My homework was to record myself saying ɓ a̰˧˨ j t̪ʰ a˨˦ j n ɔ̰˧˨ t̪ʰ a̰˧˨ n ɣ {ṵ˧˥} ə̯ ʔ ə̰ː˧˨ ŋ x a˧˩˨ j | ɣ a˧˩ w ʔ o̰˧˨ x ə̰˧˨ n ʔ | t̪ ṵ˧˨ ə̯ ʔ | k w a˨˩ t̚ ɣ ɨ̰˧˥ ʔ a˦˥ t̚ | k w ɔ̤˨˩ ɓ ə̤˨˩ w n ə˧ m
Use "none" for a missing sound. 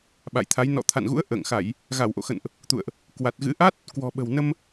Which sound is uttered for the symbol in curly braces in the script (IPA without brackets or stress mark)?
ṵ˧˥